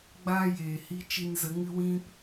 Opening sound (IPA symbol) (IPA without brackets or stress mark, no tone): ɡ͡b